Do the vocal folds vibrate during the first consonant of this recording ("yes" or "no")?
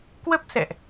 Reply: no